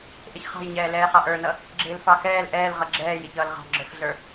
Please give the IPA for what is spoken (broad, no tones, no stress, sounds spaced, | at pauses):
ʔ ɪ ç χ ɑ̤ j ɲ ɛː l ɛː χ ɑ ʔ ə˞ n ʌ | ɡ͡ǁ ɪː l f ɑ x ɛː l ʔ ɛː l ʁ ʌ ɡ͡ǁ ɛː j ɪ ç ʌː l ʁ ɑ̤ ɡ͡ǁ ə˞ f ɮ ə˞